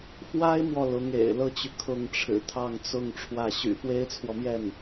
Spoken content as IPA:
f w a˥ ɪ̯ m w ɔ˨ l ʊ˧˥ ŋ ḛ˨˩ ɪ̯ l ɤ˥ t͡ɕ y˨ kʰ ʊ˥˩ ŋ ʈ͡ʂʰ ɻ̩˨˩ t̪ʰ ɑ˥˧ ŋ t͡s ʊ˥˧ ŋ ʈ͡ʂʰ w ä˥˩ ɕ y̰˨˩ f w e˥ ɪ̯ t͡sʰ w ɔ˨ m j ɛ˥˩ n

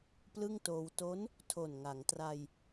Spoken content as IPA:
p l ɯ˥˩ ŋ t oː˧ w t o˦˥ n | tʰ o˨˩ n ŋ a˩˦ ŋ t r a˧ j

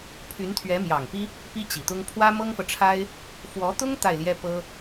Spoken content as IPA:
pʰ y˧˥ n t̪ʰ ɥ ɛ˧˥ m j ɑ˨˩ ŋ p i˥ | p i˥ t͡ɕ i˨˩ t̪ ʊ˥ ŋ pʰ w ä˥ m ɤ˥ ŋ f ɤ˨ ʈ͡ʂʰ a˥ ɪ̯ | f w ɔ˧˥ t̪ ʊ˥ ŋ t̪ a˥˩ ɪ̯ l j ɛ˥ p ɤ˥

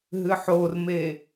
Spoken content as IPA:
ɦ ɨ ħ o r m e

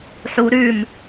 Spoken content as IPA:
ħ u ɾ ʉ m

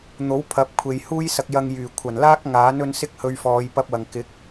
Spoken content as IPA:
n̪ o˨˥ w pʰ ɐ˨˥ p̚ kʷʰ e˨ j h uː˥ j s ɐ˧ k̚ j ɐ˧ ŋ j yː˨˩ kʷʰ ɐ˨˩ n l aː˥ k̚ ŋ aː˨˥ n ɵ˧ n s ɪ˥ k̚ h ɵ˧ ɥ f ɔː˨˧ j p ɐ˥ p̚ w ɐ˨ ŋ k ɪ˨˥ k̚

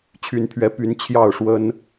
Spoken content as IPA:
t͡ɕʰ y˧˥ n pʰ ɥ ɛ˧˥ p y˧˥ n t͡ɕʰ j ɑ˥˩ ʊ̯ ʂ w ə˥ n

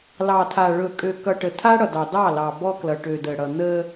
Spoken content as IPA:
l ɑ˨ tʰ a˨ ɭ ɵ˨ kʼ ø˨ k ʌ˨ ʈ ə˨ tʰ a˦ ɽ ʌ˨ d ɑ˨ d ɑ˦˨ l ɑ˨ b ɔ˦ k l ʌ˨ ʈ ø˨ d ə˨ ɽ ʌ˨ n̪ ə˦

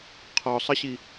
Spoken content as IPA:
qʰ ɔ sˤ ə ɕ i

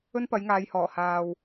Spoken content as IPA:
ɵ˥ n p ɐ˨˥ j ŋ aː˨˧ j h ɔː˨˩ h aː˨ w

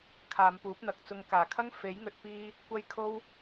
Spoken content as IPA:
kʰ aː˨˧ m p uː˨˥ p̚ n̪ ɐ˨˥ k̚ t͡s ʊ˨ ŋ k aː˨˩ kʰ ɐ˥ ŋ f e˨˥ j ŋ ɵ˨ t̚ p iː˧ | kʷ ɐ˧ j kʰ o˥ w

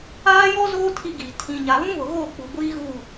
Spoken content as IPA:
aː˦ j ɔ˦ z oː˦ tʰ i˦ ɡ iː˨ tʰ ĩ˨ ɲ a˨ β ũ˦ β ʊ˨ ɣ o˦˨ k͡p u˨ ɡʷ iː˦ ɣ u˦˨

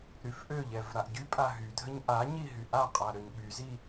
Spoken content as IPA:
ɾ y f ʔ ø ʎ ɛ v ɾ a ʔ ɟ y pʼ a ɦ y dʱ ə ɲ ʔ a ɲ i ɦ y ʔ a qʼ a ɾ ø ɲ ɓ y z i

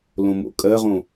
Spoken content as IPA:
l õ m o̰ kʼ ɜ ʁ õ

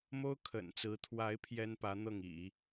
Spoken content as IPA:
m o˥ ʊ̯ kʰ ə̰˨˩ n t͡s ɹ̩˧˥ t̪ʰ w a˧˥ ɪ̯ pʰ j ɛ˥ n p ä˧˥ n̪ ɤ˥˩ ŋ ḭ˨˩˦

